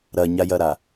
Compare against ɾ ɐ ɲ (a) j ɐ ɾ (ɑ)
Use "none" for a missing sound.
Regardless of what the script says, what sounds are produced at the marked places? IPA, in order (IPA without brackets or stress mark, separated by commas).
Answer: a, a